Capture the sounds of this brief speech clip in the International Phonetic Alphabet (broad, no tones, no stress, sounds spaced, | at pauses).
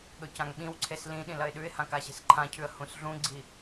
ɠ ɵ c ã ŋ ɓ ĩ w ǀʰ e s l ĩ ɗ ĩ l ɐ ɪ̯ ɗ ʉ ɪ̯ h ã k a ɕ e̤ s ǃʰ ã cʰ ʉ ə̯ h ũ s ɮ ũ ɡ͡ǀ i